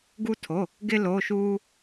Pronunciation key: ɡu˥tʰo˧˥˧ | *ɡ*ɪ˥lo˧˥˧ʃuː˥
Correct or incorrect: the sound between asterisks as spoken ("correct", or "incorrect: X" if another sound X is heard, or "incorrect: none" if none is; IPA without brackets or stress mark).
correct